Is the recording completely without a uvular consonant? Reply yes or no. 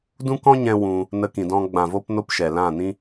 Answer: yes